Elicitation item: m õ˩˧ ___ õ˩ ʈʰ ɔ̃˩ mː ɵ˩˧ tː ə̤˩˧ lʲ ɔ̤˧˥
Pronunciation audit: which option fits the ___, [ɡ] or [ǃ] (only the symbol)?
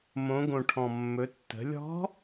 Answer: ɡ